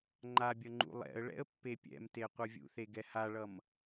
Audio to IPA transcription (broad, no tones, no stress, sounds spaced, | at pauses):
ŋ͡ǃ a bʲ ʌ ŋ͡ǃ ṵ lˠ ɛ̰ ə̯ ɭ ɛ̰ ə̯ pː e pʲ ɛ̰ m t e qʷ ɯ vʲ ṵ θ e ɡ ɛ h a ɭ ʌ m